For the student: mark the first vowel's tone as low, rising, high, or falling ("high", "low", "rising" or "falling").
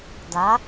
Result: rising